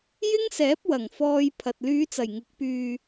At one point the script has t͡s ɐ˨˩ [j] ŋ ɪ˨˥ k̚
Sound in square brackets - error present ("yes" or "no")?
no